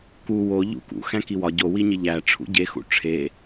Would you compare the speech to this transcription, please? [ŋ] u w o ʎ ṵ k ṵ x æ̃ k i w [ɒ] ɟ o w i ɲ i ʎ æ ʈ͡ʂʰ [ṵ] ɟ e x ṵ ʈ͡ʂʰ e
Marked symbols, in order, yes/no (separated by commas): no, yes, yes